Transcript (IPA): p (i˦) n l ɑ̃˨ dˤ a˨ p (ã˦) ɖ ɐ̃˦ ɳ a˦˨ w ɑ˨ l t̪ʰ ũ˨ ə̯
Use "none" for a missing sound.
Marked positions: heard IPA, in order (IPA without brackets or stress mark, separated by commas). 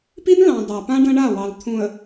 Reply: i˦, ã˦